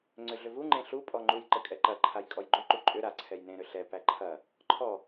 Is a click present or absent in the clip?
present